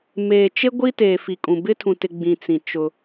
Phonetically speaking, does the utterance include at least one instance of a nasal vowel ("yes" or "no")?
yes